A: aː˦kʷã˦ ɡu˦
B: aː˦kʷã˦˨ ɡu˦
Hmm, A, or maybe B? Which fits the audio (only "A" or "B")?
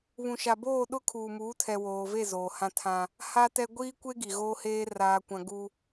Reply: A